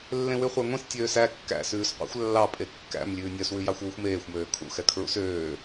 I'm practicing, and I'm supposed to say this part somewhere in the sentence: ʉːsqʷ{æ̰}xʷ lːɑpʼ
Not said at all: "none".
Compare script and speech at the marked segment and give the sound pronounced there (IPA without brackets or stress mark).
æ̰